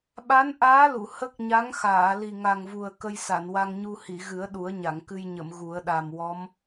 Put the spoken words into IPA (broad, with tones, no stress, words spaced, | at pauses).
ɓa˧˥nʔaː˧˥ lu˨˩˨ hə˦˥k̚ɲa˧˥ŋxaː˨˩˨ li˨˩ŋa˨˩ŋvu˨˩ə̯ kə˧jsa˨˩˨nwa˧ŋɲu˧ hi˨˩˨ɣɨ˨˩˦ə̯ ɗu˨˩˦ə̯ɲa˨˩˨ŋ kɨ˧jɲə˨˩˨m ɣu˨˩˦ə̯ɗa˨˩m wɔ˧˥m